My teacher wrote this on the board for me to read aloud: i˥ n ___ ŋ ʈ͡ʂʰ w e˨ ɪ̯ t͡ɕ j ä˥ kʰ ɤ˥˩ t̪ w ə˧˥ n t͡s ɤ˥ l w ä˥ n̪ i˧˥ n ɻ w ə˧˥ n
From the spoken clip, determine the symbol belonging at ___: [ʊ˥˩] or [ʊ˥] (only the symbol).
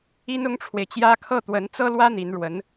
ʊ˥